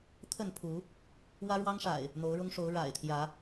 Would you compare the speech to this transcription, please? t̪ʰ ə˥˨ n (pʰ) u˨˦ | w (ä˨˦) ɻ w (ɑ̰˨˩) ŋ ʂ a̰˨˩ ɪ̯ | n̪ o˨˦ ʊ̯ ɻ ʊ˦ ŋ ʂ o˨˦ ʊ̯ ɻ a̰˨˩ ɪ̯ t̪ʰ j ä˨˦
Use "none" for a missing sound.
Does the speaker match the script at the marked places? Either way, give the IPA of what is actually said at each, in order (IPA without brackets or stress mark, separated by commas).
pʰ, ä˦, ɑ˦